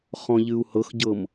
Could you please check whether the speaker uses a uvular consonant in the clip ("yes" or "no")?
yes